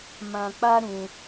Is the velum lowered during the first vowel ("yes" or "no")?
yes